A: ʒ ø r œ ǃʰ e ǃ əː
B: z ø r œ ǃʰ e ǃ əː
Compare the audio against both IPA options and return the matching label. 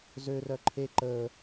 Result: B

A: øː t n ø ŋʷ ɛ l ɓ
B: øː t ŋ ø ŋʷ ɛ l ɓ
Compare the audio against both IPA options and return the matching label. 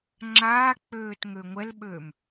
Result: B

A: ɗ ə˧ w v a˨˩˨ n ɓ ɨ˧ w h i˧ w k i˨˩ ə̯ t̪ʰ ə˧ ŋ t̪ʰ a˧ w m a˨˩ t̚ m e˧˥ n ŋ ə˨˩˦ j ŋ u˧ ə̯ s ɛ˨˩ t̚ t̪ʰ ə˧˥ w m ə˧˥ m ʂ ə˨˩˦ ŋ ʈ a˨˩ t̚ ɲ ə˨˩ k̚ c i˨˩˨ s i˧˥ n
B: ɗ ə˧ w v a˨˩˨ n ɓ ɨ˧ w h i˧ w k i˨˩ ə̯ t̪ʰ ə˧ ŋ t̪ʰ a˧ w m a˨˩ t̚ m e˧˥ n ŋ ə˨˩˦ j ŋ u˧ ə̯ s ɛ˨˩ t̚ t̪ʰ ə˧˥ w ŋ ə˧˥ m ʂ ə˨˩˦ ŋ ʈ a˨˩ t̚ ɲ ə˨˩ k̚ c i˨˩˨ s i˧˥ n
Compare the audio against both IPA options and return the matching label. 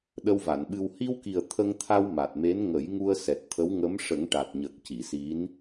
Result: B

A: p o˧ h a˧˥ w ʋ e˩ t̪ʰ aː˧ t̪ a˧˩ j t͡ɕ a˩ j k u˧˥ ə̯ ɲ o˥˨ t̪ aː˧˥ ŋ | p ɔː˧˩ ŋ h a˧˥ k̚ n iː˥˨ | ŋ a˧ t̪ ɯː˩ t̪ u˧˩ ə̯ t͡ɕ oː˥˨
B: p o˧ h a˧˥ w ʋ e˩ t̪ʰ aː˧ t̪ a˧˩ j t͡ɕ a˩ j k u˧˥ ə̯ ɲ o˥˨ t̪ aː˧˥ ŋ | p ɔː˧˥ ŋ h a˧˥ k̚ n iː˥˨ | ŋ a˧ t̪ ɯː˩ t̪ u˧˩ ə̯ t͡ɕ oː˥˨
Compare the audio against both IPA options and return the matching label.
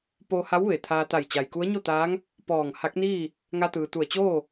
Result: A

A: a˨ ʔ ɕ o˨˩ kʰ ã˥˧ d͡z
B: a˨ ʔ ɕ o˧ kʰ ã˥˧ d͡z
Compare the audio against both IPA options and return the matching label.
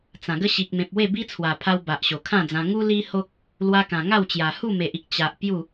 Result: A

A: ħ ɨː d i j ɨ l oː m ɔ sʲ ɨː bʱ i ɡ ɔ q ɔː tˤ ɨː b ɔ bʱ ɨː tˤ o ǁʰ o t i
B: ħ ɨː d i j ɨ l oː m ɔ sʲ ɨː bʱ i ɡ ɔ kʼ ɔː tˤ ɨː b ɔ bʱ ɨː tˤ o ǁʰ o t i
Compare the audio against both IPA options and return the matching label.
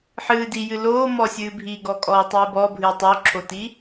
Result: B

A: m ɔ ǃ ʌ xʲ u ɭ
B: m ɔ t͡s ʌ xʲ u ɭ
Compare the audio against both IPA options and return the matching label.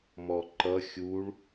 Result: A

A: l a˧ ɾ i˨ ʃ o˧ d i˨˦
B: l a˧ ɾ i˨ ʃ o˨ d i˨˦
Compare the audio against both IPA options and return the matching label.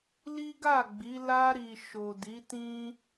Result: B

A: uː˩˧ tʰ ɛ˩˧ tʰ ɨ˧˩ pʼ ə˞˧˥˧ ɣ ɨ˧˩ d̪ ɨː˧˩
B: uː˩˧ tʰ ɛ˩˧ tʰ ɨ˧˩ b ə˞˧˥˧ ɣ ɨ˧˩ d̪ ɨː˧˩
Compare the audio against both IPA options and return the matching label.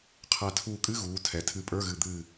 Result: A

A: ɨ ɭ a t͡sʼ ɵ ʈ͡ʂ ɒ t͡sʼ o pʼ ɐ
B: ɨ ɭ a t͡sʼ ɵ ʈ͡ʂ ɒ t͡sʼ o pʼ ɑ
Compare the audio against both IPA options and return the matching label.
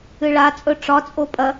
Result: A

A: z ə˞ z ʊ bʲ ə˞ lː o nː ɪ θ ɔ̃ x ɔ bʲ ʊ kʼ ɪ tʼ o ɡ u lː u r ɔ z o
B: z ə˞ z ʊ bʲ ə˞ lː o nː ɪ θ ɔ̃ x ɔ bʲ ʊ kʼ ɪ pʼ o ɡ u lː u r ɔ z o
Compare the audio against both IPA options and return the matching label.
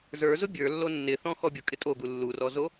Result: A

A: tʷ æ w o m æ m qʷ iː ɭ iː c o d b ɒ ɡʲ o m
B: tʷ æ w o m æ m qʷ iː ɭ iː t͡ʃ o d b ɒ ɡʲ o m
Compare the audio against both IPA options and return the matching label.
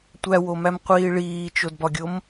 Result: B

